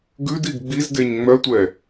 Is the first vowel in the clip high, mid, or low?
high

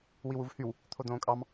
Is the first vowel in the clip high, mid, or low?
high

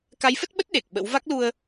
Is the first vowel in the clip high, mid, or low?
low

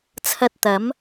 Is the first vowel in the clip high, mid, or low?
low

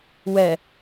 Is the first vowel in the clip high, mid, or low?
mid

